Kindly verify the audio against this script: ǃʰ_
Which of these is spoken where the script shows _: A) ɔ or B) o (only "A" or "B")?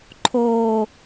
B